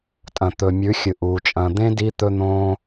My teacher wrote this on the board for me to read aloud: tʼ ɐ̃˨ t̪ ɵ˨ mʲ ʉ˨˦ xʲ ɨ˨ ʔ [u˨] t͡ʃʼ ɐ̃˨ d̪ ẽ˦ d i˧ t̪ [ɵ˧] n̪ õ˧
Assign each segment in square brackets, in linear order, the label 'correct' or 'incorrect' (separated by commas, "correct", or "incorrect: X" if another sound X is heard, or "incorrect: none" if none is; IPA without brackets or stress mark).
correct, correct